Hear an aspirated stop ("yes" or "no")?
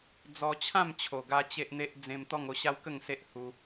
yes